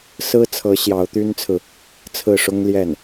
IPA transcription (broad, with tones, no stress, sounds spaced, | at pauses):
s ɹ̩˥ t͡sʰ ɤ˧˥ ɕ j ɑ˧˥ ʊ̯ t̪ y˥ n t͡sʰ ɹ̩˨ | t͡sʰ ɹ̩˥˩ ʂ ʊ˥ ŋ l j ɛ˥˩ n